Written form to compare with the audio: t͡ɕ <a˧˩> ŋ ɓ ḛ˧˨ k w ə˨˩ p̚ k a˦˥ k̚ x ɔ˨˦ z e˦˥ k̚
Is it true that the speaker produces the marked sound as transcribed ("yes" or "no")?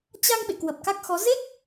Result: no